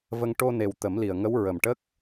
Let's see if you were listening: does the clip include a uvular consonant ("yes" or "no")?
no